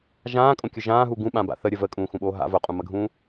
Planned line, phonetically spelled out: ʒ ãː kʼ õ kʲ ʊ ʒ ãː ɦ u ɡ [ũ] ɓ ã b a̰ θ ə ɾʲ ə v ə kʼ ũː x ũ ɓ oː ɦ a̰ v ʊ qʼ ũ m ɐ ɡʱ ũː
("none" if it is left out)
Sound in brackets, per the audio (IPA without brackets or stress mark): ũ